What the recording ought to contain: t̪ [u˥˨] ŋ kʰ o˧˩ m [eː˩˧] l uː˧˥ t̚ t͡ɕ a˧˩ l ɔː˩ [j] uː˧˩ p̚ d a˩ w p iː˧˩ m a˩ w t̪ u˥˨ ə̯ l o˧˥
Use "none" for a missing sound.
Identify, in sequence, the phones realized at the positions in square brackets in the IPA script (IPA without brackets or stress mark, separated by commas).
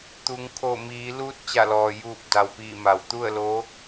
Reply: u˩˧, iː˩˧, j